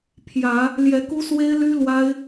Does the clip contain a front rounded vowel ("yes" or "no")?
yes